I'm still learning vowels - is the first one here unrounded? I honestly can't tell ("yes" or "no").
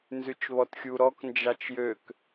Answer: no